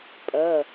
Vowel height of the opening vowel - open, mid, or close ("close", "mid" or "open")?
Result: mid